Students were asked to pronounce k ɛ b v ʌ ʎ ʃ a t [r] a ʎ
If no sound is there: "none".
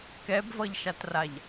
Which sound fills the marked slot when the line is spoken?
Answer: r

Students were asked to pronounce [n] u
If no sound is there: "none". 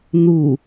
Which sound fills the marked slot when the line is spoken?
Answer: n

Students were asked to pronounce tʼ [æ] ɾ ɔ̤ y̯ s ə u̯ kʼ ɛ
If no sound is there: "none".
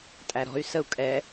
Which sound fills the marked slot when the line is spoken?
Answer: æ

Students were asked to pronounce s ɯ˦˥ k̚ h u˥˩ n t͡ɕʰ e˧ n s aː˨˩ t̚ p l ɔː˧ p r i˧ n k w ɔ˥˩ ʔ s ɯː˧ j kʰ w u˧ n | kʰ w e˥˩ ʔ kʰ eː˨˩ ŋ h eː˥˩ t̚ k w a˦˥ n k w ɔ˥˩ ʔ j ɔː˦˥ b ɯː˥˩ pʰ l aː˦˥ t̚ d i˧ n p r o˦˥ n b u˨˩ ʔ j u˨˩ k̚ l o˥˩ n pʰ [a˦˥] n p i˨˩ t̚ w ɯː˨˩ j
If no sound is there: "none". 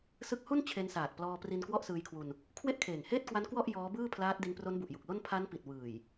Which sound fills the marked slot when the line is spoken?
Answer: a˦˥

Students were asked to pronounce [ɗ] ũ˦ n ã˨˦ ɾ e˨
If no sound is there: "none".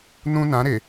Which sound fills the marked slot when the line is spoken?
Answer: n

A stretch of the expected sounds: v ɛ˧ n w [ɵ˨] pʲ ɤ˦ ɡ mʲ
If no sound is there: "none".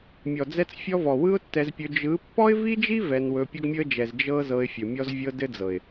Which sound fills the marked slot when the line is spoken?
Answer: ɵ˧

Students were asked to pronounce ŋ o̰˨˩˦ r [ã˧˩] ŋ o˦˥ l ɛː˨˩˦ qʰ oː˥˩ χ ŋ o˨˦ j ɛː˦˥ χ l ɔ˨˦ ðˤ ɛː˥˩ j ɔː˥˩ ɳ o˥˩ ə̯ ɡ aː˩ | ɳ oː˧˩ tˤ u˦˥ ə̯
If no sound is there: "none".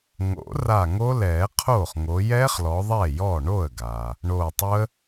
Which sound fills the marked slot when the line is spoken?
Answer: a˧˩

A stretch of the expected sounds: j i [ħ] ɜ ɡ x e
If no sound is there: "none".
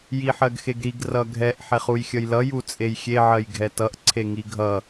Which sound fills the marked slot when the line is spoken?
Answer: ħ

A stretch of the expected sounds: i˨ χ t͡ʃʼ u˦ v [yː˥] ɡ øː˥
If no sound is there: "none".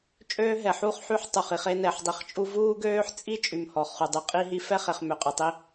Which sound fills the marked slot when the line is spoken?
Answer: uː˥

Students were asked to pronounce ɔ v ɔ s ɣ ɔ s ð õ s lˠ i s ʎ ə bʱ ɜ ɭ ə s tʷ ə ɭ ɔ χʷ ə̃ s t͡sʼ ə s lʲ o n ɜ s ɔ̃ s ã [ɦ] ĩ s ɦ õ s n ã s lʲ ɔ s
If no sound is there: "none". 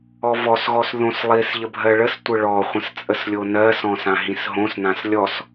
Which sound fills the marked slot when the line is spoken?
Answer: ɦ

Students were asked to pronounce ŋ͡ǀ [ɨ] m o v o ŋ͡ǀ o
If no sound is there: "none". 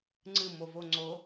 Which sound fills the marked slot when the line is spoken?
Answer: ɨ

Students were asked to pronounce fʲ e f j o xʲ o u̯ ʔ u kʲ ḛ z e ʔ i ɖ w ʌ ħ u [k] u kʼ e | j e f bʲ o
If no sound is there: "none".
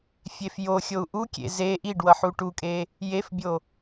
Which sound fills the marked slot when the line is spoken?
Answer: ʈ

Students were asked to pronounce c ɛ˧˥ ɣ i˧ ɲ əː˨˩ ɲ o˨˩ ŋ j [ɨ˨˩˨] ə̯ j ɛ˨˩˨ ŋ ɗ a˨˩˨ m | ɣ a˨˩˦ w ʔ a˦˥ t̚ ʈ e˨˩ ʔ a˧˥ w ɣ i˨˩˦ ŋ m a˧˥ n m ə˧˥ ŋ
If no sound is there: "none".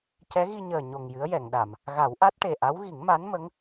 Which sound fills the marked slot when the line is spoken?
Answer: ɨ˧˥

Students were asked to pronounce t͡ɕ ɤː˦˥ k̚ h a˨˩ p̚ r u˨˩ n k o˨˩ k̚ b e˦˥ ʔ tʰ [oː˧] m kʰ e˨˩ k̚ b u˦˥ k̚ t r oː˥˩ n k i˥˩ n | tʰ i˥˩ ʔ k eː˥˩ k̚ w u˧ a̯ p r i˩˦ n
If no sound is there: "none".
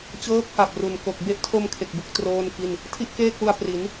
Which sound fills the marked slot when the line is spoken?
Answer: o˧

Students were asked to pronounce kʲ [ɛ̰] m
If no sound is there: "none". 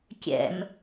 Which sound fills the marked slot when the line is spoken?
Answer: ɛ̰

